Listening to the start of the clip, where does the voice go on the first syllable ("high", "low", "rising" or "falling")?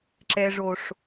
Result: low